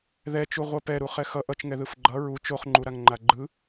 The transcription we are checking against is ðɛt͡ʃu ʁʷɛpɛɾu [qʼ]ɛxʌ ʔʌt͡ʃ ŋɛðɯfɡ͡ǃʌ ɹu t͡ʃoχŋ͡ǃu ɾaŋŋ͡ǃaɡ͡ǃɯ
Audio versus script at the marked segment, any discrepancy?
yes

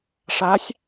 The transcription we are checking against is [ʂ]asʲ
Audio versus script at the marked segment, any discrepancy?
no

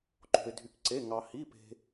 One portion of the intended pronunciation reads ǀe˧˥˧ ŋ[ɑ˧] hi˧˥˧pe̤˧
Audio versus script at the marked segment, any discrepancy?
no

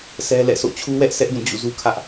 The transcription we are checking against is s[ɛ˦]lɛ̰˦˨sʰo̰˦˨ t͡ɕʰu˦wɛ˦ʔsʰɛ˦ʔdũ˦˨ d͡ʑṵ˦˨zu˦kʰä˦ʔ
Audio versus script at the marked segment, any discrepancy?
no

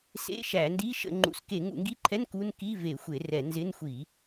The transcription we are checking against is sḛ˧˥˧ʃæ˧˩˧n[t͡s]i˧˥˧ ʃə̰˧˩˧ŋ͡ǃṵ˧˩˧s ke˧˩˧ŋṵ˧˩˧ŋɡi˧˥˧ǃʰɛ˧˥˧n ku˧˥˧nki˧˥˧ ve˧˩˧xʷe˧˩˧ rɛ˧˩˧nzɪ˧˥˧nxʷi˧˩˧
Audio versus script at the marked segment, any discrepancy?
yes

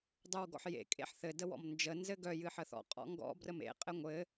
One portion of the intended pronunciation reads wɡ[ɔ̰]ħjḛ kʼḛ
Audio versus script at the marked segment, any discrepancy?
no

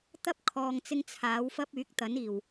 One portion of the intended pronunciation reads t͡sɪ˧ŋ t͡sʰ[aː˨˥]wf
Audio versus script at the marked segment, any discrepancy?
no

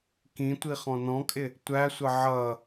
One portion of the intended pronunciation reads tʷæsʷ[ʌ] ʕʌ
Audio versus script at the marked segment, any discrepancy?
no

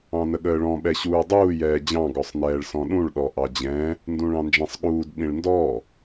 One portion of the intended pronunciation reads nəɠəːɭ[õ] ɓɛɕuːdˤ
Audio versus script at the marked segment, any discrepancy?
yes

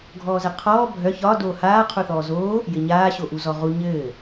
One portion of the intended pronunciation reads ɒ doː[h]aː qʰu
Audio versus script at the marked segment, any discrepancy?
no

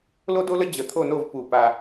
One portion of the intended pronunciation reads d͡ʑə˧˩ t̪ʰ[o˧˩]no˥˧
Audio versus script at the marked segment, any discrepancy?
yes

